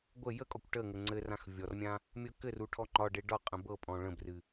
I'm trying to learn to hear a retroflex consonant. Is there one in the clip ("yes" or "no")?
yes